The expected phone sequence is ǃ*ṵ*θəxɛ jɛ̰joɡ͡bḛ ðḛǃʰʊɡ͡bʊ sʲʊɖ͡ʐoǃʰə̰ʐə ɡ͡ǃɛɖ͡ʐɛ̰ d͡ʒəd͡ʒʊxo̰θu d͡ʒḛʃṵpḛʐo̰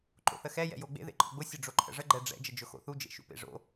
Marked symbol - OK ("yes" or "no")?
no